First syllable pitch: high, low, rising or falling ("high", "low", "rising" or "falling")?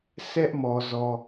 high